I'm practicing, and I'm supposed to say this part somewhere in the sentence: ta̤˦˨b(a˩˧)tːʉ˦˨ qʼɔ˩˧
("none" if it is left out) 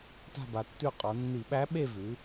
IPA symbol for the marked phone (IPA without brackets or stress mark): a˩˧